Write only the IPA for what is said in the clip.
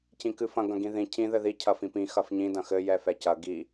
c ĩ k ɨ f ɐ̃ ɡ ɐ̃ ɡ ĩ ð ĩ cʰ ĩ ð ɘ ð i cʰ ɐ f ĩ p ĩ x ɐ f ɲ ĩ d ɐ̃ x ɘ j ɛ f ɛ c ɐ ɡ i

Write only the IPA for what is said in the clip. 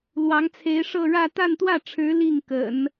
l w ɑ˧˥ ŋ t͡sʰ e˧˥ ɪ̯ ʂ ɤ˥˧ ɻ ä˥˧ t̪ a˥˧ n t̪ w ä˥˩ ʈ͡ʂʰ ɻ̩˧˥ l i˥˩ ŋ k ə̰˨˩˦ n

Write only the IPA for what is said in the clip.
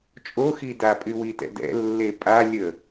t͡ʃʼ o x i d a pʼ y w i t ɛ̰ d ɛ̰ lː e pʼ a lʲ ə

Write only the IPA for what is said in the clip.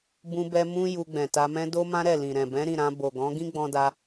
b ũ˧ b ɛ˧ m ũ˧ j u˧ ɡ͡b ɛ̃˨ t a˧ m ɛ̃˦ d o˦ m ã˦ ɾ ɛ˦˨ l ĩ˨ ɾ ɛ̃˨ b ɛ̃˨˦ ɾ ĩ˦˨ ɾ ã˧ b o˨ ɡ ɔ̃˨˦ ɡ ĩ˦ ɡ͡b ɔ̃˧ d a˧

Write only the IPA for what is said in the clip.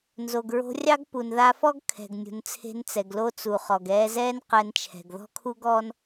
n z o˩ ɡ ɹ o̤˧ rʲ ɑ˥ ɡ p u˩ n ð a˧ f ɔ˥ ɡ kʰ ɛ̤˩ ɡ nʲ ṳ˩ n t͡sʰ e̤˧ n t͡s ɛ˩ ɡ l o˧ t͡s u˩ χ ɔ˩ ɡ ɛː˧ z ɛː˥ n q ɛ˧ n t͡ʃʰ ɛ̤˩ ɡ ð ɔ̤˥ kʰ u˥ ɡ ɔː˥ n

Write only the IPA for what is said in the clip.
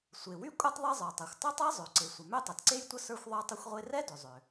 sʷ e˩ w y˥ kʷʼ e˥ tˤ ðˤ ɛ˥ zˤ ə˞˩ tˤ ɛ˩ xʷ tˤ ʏ˥ tˤ ɛ˥ zˤ ø˩ ǀ e˩ sʷ ə˩ m ø˥ tˤ ɛ˩ t ǀ e˥ j tʷ ə˥ s ə˞˥ xʷ ðˤ ə˞˥ tˤ ʏ˥ xʷ ʁʷ e˥ r ɛ˥ d ʏ˩ zˤ ʏ˩

